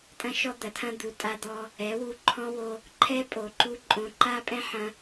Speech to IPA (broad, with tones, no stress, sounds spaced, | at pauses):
tʼ ɐ̃˦ ʃ ɔ˦ d̪ ɐ˨ tʰ ɐ̃˦ d̪ u˨˦ tʼ a˧ d̪ ɔ˧ | ɛ˨˦ w u˧ ǃʰ ɔ̃˦ w o˧ | ǃʰ ɛ˦ pʼ o˨ ǃ u˧ ǃʼ õ˧ ǃ a˦ pʼ ɛ̃˦ ħ ɐ̃˧